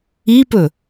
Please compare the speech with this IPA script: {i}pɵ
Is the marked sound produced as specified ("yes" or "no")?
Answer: yes